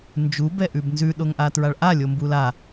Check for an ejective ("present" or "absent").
absent